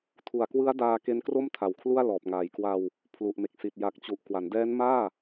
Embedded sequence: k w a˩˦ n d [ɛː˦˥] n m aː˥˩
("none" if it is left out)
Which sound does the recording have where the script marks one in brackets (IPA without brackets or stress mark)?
ɛː˦˥